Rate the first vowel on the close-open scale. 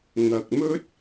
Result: open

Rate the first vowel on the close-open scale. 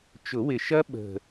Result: close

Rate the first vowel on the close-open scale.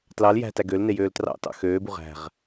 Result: open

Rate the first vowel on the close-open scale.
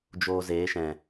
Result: mid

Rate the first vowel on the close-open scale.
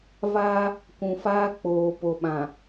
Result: open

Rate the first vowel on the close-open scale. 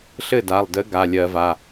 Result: mid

